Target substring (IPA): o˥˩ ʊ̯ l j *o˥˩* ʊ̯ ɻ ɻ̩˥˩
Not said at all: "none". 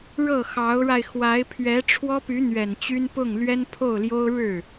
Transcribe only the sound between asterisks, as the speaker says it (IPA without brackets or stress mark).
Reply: o˥